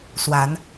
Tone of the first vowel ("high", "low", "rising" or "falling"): rising